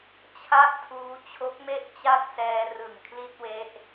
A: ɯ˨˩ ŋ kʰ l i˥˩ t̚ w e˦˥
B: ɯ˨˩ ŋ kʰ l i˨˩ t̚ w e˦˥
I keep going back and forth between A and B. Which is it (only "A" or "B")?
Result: A